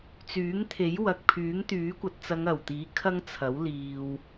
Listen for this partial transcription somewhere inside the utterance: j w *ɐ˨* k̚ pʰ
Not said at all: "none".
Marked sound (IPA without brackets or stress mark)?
ɐ˨